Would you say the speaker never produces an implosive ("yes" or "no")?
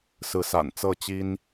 yes